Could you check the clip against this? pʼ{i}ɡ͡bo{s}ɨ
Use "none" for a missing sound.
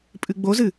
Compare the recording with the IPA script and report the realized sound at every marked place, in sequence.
ɨ, z

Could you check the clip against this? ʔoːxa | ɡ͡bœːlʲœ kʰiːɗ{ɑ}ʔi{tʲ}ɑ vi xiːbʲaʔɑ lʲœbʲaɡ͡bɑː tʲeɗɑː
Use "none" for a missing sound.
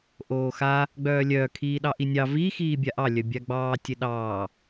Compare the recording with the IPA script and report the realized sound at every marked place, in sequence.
ɑ, nʲ

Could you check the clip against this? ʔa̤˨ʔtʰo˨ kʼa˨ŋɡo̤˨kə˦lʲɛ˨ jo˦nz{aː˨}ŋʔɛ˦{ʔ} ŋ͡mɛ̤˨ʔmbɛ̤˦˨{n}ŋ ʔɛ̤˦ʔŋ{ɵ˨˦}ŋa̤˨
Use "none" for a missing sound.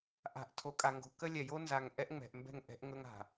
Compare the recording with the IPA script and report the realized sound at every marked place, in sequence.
a˨, ʔ, none, ɵ˦

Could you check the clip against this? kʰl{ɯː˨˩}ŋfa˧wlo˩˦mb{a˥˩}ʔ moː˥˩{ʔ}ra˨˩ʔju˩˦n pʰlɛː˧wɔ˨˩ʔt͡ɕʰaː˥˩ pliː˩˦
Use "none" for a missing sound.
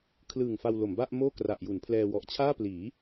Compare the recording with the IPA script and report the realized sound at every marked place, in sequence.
ɯː˨˩, a˥˩, k

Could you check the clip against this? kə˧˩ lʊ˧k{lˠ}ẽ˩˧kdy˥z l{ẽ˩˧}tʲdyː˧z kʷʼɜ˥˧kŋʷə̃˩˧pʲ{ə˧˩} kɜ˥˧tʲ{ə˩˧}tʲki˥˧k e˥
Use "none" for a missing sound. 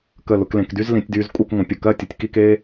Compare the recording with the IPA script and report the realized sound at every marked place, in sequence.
l, ĩ˩˧, ə˧˩, ə˩˧

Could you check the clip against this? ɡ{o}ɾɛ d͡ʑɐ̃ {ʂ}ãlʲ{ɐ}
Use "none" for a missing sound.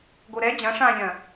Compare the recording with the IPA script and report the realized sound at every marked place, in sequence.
o, ʂ, ɐ̃

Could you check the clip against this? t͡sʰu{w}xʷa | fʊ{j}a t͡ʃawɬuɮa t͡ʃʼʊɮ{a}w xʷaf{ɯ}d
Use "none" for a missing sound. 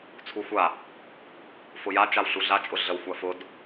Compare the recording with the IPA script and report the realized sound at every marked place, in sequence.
none, j, ə, ʊ

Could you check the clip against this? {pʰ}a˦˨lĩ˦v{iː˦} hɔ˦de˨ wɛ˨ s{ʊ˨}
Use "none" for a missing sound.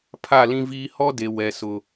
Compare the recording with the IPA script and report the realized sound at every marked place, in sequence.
pʰ, iː˦, ʊ˨

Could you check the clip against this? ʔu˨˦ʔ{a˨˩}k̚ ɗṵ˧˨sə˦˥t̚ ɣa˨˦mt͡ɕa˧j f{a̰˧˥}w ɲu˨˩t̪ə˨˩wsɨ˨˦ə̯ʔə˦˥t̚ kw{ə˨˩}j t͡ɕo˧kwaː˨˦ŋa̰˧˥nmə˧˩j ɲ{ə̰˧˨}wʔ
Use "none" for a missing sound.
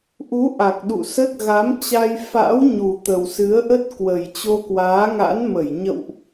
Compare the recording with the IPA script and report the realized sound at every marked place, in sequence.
a˨˩, a̰˧˥, ə˨˩, ə̰˧˨

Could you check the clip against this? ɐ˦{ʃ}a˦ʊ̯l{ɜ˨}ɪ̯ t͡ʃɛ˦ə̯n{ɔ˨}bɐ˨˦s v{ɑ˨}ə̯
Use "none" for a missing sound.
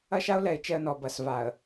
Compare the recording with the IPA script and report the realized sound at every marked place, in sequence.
ʃ, ɛ˨, ɔ˨, a˨

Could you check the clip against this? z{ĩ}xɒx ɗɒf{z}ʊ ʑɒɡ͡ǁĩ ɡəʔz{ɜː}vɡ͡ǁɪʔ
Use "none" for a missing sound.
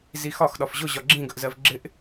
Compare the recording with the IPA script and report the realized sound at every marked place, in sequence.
i, ʑ, ɜ

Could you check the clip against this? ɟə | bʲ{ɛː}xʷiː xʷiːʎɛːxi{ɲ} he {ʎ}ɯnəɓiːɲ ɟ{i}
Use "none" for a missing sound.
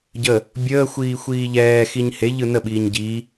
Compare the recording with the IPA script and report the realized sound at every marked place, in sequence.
əː, ɲ, ʎ, i

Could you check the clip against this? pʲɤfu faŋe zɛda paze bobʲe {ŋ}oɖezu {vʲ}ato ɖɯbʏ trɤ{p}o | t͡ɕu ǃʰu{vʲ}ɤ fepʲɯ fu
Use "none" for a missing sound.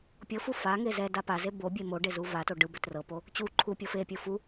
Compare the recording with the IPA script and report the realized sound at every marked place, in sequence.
m, v, p, pʲ

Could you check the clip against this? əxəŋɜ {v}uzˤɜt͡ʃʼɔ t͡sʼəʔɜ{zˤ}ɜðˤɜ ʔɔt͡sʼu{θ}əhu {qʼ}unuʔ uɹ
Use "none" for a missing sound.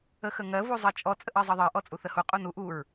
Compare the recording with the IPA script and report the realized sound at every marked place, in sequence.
v, zˤ, θ, qʼ

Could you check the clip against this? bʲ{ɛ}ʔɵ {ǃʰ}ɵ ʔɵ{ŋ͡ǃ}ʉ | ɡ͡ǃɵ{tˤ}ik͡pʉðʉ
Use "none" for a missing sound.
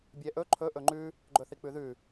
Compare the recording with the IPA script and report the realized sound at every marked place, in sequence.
ɛ, ǃʰ, ŋ͡ǃ, θ

